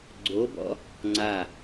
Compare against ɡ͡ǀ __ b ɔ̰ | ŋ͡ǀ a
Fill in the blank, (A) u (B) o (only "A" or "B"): B